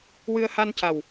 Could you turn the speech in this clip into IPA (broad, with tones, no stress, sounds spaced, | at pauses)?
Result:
w ɨ˧ ə̯ h a˧ n c a˨˩ w